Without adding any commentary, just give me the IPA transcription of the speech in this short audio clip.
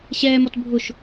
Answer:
ɕ ɛː m ɔ t bʱ ʊ ʃ

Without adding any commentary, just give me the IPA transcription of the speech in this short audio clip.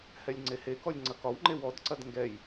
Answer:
h ɛ lʲ ŋ͡ǀ e h e k ɔ lʲ ŋ͡ǀ ɐ k ɒ w ŋ͡ǃ e w ɔ d ǀ ɐ d ŋ ɡ ɛ j

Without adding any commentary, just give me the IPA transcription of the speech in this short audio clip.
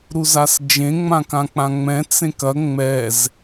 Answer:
ɾ u z a s d͡ʒ ẽ ŋ͡m ã k ã k͡p ã ŋ͡m ɛ̃ t͡s ẽ k ɐ ŋ͡m ɛ z

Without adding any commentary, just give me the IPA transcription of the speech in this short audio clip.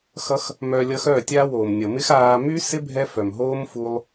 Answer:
x ʌ˦ x | m œː˧ lʲ ʌ˧ x œː˦˨ tʲ aː˦ w oː˨ m nʲ ʌ˨ m ɪ˦ x aː˧ m y˦ s ɪ˦ bʱ ɛ˦ f œ˨ m ɦ oː˦ m f u˦ lˠ

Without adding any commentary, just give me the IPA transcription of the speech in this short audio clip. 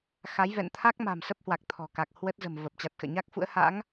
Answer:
x a˨˦ j v ɛ̰˧˨ n t̪ʰ a˦˥ k̚ m a̤˨˩ m s ə˦˥ p̚ h w a˨˩ k̚ t̪ʰ ɔ̤˨˩ k a˨˩ k̚ h w ə˦˥ t̚ z ə̤˨˩ m v ə˨˩ p̚ t͡ɕ a˨˩ t̚ x ə̰ː˧˨ ɲ a˦˥ k̚ f ṵ˧˥ ə̯ h a̰˧˥ ŋ

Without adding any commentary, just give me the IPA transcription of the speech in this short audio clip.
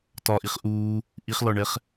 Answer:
t ɒ ʔ i χ ʔ uː | ʔ i χ l ɒ ɳ ɛ χ

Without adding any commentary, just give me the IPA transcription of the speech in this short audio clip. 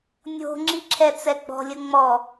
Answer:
nʲ o̤ ŋ͡ǁ i ǁʰ ɛ t͡s ɛ ɡ͡b ɔ̤ lʲ ə ŋ͡m ɔ

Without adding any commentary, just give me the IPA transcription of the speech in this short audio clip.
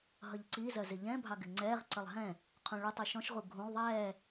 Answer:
ɦ ʌ ʎ ǀ i z ɜ z ɪ ʎ ɛ̃ bʱ ɑ ɡ ɪ ŋ͡ǀ ɛː ʁ ǀ ə lˠ ɦ ɛ̃ | qʰ ũ ɭ ʊ tˤ i ʃ ɔ̃ ʃ ʁ u ɡʱ ũ lˠ ðˤ ɛː

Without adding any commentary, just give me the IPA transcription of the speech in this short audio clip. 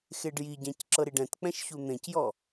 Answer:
x e ɖ j i ɟ ɛ̃ c ǁ ɤ ɾ i ɖ ɛ̃ t k͡p ɛ̃ ʃ ç u n̪ ẽ c j ɔ

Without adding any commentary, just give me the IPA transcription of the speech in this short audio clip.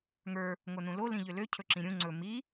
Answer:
ŋ ə˞ | ŋ o n ũ l o l ĩ ʎ ʏ l ø cʰ ɵ ǁ ĩ ɾʲ ũ ŋ͡ǀ ɵ m i

